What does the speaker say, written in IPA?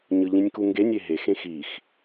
ɲ ɯ ʎ ĩ nʲ k u ŋ ɡ e nʲ e ɦ e x ẽ x i x

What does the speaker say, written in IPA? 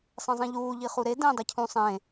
sˤ ẽ zˤ ĩ ʎ uː ʎ i χ u ɾ e d ẽ dˤ e cʰ ũ sˤ ẽ

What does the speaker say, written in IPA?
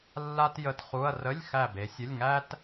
lː a˥ t j ə˧˥˧ t χ u˧˥˧ ɐ̯ r ə˧˥˧ lʲ x æ˦˨ b e˨˦ sʲ ə˧˥˧ lʲ ŋ æ˥ t

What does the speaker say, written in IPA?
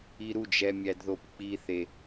i ɾ u d͡ʒ ɛ mʲ æ d ð o p k͡p i θ e

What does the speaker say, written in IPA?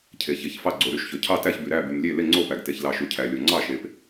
cʰ e˩ ç e˩ ç f ɑ˧˩ ɡ͡ǀ o˩ ɾ y˧˩ ʃ ç ø˩ cʰ ɑ˧˩ t æ˧˩ ç b y˩ ɾ æ˧˩ b y˩ m lʲ e˧˩ l e˧˩ ŋ͡ǀ o˧˩ p æ˩ ɡ t e˩ ç l ɑ˩ ʃ y˩ cʰ æ˩ lʲ o˩ ŋ͡ǀ ɑ˧˩ ʃ e˩ p

